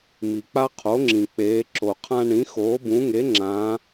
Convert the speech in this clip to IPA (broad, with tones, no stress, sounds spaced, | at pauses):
m i˩ k͡p a˦ qʰ o˩˥ ŋ͡ǁ ĩ˩ k͡p eː˩˧ ǁ o˩ qʰ ã˦ ɳ ĩ˩˥ x oː˩˥ b ũ˩˥ ŋ e˩˥ ŋ͡ǁ ã˩˧